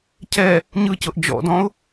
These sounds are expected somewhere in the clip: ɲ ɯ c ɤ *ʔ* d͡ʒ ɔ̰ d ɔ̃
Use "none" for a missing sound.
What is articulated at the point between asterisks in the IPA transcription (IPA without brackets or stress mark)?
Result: ʔ